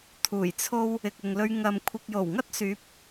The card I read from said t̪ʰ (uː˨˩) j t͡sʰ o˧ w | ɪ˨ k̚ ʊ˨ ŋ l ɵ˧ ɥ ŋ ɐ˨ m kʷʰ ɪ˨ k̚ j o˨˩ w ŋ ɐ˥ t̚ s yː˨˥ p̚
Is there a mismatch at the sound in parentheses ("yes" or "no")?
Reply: no